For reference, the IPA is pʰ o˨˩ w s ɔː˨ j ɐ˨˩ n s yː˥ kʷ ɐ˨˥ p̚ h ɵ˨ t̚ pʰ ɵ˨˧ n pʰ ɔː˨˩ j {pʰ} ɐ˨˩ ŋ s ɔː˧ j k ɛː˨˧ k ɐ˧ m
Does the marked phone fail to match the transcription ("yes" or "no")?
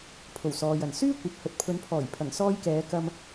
no